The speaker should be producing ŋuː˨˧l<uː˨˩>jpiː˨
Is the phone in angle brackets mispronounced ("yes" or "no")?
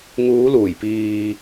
no